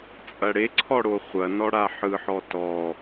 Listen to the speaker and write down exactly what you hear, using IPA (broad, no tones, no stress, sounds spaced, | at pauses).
t͡sʼ ɐ ɽ e ǀʰ ɔ ɽ o χʷ ɐ n ɔ ɽ a ħ ɯ ħ ɔ t ɔ